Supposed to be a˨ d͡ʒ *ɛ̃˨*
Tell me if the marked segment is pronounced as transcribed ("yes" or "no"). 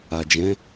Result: no